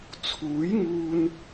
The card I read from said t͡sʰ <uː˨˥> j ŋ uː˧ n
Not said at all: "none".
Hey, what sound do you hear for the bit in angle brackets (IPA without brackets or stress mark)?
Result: uː˨˥